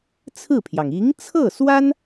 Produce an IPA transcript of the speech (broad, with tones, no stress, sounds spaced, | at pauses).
t͡sʰ ɹ̩˥˩ pʰ j ɑ˩ ŋ i˧˥ ŋ t͡sʰ ɤ˥˩ s w a˥ n